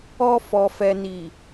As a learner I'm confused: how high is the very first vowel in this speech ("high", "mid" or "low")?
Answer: mid